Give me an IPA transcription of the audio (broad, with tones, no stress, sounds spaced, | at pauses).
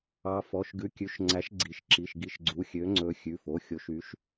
ɑ˨˦ f ɔ˩˧˩ ʃ ɡ ʉ˨˦ kʲ ʉ˩˧˩ ʃ ŋ͡ǀ æ˨˦ ʃ ɡ͡ǀ i˩˧˩ ʃ ǁ i˩˧˩ ʃ ɡ i˨˦ ʃ ɡ͡ǀ u˩˧˩ xʲ ø˨˦ ŋ͡ǀ ɵ˨˦ xʲ ʉ˩˧˩ f o˩˧˩ xʲ o˨˦ ʃ y˨˦ ʃ